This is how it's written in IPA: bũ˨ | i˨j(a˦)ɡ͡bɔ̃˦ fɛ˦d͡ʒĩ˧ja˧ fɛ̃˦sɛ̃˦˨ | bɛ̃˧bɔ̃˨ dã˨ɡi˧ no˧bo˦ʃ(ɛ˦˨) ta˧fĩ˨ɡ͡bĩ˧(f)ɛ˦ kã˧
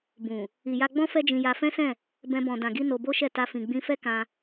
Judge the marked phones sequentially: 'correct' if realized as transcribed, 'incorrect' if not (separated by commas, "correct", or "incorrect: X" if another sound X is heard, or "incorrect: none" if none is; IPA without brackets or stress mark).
incorrect: a˧, correct, correct